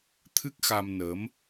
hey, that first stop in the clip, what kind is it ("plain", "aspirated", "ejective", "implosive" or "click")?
aspirated